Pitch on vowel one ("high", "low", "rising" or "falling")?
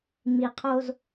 low